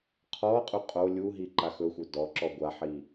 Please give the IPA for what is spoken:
qʰ ɔ qʼ u qʼ o lʲ u ɦ i ǃ a x ɵ xʷ œ d ɔ ǁ ɔ ɡʷ a ħ i

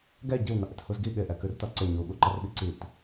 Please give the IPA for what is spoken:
ɡ ɛ ɟ i w n ʌ ʔ ɪ t h u z ɡ i ɠ ɪ ʔ ɛ k ʉ r t ʌ ǀ ɪ ɲ u ɠ u ǃ ʌ r ɓ i ǀ i t

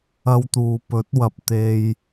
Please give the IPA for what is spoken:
ɐ˧ w t̪ uː˨ p ɵ˨˥ t̚ w ɐ˨ p̚ t̪ e˨ j

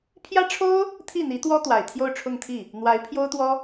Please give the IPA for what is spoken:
pʰ j ä˥ ʈ͡ʂʰ o˥ ʊ̯ | t̪ʰ i˥˩ n̪ i˧˥ t̪ w ɔ˥ t̪ w a˨˩ ɪ̯ t̪ʰ j o˥˧ ʊ̯ ʈ͡ʂʰ ʊ˥˧ ŋ t̪ʰ i˥˩ | n̪ w a˧˥ ɪ̯ pʰ j o˥ ʊ̯ t̪ w ɔ˥

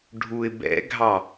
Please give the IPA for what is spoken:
ɖʱ u ɪ̯ b ɛ̰ ɡʱ ɑ

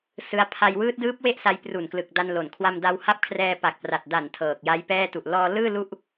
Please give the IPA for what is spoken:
s ɯ˦˥ a̯ pʰ a˧ j w ɯː˦˥ t̚ d ɯː˦˥ p̚ w e˥˩ ʔ s a˧ j p r u˨˩ n k l ɯ˨˩ k̚ d a˧ n l o˨˩ n kʰ w a˧ m d a˧ w h a˦˥ p̚ kʰ r ɛː˧ p a˨˩ k̚ p r a˨˩ t̚ d a˨˩ n tʰ ɤː˨˩ k̚ j a˦˥ j p ɛː˥˩ t u˨˩ ʔ l ɔː˧ l ɯː˥˩ l u˥˩ ʔ

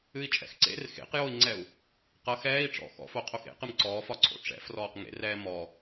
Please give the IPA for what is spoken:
ɨ i̯ t͡ʃʼ ɛ̰ x ǀ ḛ r x ḛ q j o i̯ ŋ͡ǀ ɛ u̯ | q ʌ x ɛː i̯ ʈ͡ʂ ɔ̰ x ɔ̰ f o qʰ o x ḛ q ɨ m ǀ ɔː f ɒ ǀʰ o̰ ʈ͡ʂ ɛ̰ f r ɔː q ŋ ḛ r ɛː m ɔ

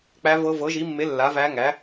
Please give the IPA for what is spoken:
k͡p æ˧˥ v ɤ˧˥ v ɤ˩˥ ʒ i˩˥ mː e˩˥ lː a˩˥ v æ˧˥ ŋ æ˩˥

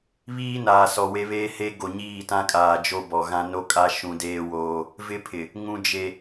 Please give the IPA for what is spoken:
β iː˦ n aː˨ s ɔ˨ w e˦ β eː˦ h e˦ ɡ o˨ ɲ iː˦˨ t ã˦ kʼ aː˨ d͡ʒ o˦ b ɔ˨ ɣ ã˦ n o˦ kʼ a˦ ʃ ũ˦ d eː˦ w oː˦ | v ɪ˦ pʰ ɪ˨ | ŋ ũ˨ d͡ʒ e˨

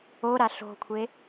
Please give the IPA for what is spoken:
o ɾ a ɬ o̤ kʷʰ e

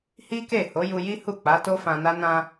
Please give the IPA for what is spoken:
h i˦ k e˦˨ h o˨˦ j u˧ j i˦ h u˦˨ k͡p a˨˦ t o˦ f ã˧ n a˦ n ã˧

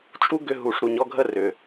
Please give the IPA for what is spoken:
t͡ʃʼ u˦ ɡ ʏ˧ ɦ u˨ ʂ ɾ u˨ ɲ ɔ˧ ɡʱ ə˦ r ʏ˨

